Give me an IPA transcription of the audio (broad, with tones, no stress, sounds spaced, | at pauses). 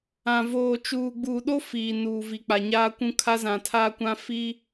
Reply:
ã˨ v oː˨ t͡ʃ uː˨ ɡ͡b uː˨ ɗ o˦ f iː˨ n uː˨ v i˨ k͡p a˨ ɲ aː˦ kʷ ũ˦ kʰ a˦ z ã˨ tʰ aː˦ kʷ ã˦ f i˦